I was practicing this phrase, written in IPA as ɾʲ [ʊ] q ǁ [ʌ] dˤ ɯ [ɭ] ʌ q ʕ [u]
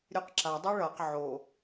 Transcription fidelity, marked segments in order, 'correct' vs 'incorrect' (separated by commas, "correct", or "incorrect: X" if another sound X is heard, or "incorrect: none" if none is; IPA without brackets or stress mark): incorrect: ɯ, incorrect: a, correct, incorrect: o